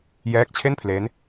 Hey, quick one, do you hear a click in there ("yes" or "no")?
no